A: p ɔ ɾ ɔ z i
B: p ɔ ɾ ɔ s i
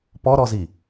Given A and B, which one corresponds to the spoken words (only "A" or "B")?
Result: A